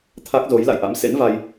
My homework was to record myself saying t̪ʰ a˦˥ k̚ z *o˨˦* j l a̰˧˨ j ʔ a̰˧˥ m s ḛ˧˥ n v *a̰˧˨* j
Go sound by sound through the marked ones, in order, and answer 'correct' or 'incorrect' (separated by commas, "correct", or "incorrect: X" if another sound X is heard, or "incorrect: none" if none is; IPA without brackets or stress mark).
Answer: correct, incorrect: a˧